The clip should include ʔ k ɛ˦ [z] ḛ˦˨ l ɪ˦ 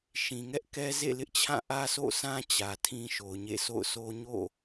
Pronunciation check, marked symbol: correct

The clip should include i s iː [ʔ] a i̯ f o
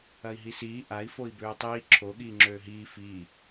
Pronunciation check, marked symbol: correct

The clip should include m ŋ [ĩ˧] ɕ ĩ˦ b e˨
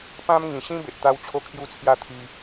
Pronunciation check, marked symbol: incorrect: ĩ˨˩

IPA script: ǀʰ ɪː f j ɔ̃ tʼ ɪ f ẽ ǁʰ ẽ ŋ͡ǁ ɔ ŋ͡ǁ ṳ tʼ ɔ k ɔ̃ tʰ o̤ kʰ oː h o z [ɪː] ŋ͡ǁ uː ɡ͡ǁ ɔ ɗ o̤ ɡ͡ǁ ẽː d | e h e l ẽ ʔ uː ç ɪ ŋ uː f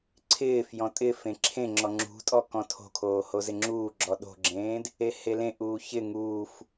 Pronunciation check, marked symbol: incorrect: ɪ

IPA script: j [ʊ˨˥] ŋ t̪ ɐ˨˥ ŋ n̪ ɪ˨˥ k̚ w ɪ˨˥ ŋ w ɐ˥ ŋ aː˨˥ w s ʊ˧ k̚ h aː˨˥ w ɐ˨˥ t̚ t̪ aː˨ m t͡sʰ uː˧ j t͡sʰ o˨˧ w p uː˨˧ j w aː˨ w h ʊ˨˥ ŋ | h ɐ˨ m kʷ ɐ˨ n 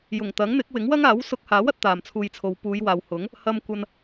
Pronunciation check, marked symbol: incorrect: ʊ˨˩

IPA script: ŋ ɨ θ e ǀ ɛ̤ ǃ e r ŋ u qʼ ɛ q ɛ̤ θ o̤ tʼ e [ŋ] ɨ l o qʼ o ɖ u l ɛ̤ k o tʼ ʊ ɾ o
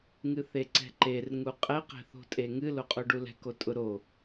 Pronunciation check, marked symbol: correct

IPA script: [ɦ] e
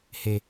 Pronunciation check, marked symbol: incorrect: h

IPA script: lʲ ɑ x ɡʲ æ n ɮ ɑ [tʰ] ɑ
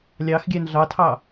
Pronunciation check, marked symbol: correct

